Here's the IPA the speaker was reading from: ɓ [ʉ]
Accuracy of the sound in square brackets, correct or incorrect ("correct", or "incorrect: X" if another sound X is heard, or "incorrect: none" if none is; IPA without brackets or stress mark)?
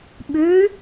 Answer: correct